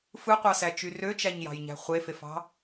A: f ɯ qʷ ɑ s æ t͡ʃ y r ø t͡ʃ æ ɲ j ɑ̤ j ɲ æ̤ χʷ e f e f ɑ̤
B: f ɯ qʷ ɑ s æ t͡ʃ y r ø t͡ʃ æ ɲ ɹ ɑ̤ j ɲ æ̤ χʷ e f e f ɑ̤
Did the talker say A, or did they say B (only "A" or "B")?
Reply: A